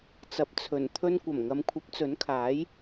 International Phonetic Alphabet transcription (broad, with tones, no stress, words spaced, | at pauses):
t͡sɐ˨˥p̚t͡sʰɵ˨˩n t̪ʰɵ˧nkʷɐ˨˩m ŋɐ˨˧mkʷʰɐ˨˥p̚t͡sɵ˨˥nkʰaː˨˥j